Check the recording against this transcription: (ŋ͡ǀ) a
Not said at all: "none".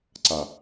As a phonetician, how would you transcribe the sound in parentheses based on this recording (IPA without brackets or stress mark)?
ǀ